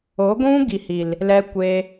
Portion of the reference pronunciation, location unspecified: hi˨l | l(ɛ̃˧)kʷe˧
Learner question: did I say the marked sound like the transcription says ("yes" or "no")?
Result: no